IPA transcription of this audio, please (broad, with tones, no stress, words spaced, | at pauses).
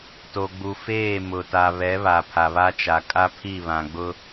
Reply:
to˨ɡ͡bu˨feː˦˨ mʊ˨ ta˨βɛ˨˦ βa˨pʰa˨βa˦t͡ʃa˨ kʼa˦ pʰi˦˨βã˨ɡ͡bʊ˦